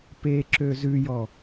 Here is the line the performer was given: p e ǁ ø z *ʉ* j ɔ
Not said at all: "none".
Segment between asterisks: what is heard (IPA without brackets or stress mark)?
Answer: ʉ